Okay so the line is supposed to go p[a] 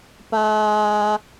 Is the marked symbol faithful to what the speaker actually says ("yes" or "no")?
no